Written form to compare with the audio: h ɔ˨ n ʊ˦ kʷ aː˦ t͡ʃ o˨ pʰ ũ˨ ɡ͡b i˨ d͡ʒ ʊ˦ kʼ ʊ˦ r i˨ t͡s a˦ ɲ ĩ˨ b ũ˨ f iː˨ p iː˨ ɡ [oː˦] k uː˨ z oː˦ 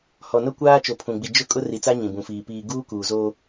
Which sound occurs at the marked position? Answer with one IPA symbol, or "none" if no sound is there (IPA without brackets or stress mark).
uː˦